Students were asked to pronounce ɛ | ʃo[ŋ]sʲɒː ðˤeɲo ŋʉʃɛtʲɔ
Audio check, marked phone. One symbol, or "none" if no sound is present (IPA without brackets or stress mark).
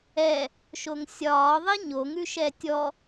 ŋ